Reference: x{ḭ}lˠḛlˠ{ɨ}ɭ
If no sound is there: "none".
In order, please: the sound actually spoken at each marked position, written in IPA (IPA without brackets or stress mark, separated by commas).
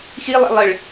i, ɨ